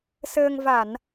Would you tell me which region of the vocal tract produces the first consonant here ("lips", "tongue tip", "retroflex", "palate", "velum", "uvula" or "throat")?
tongue tip